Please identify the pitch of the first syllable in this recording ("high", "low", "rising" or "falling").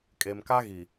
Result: low